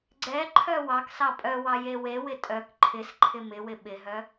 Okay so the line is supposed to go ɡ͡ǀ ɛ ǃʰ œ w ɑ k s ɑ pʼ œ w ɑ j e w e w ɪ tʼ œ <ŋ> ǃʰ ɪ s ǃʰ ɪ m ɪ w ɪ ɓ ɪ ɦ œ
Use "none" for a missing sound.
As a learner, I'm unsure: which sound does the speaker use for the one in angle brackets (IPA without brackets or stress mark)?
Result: k